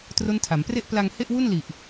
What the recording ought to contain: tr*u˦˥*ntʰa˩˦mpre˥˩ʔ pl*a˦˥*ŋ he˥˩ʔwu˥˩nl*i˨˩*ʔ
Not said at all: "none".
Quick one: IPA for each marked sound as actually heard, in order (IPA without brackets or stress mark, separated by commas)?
o˦˥, a˧, i˨˩